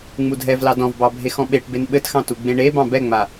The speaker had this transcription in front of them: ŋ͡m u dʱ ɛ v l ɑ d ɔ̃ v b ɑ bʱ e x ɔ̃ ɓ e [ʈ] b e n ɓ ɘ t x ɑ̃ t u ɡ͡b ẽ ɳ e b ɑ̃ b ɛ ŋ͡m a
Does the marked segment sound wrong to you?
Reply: no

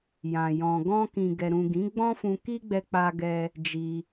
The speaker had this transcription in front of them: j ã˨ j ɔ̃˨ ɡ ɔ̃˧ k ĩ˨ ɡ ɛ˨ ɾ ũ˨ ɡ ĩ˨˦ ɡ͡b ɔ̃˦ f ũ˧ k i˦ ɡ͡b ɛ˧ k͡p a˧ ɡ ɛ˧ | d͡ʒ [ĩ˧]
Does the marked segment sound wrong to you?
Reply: yes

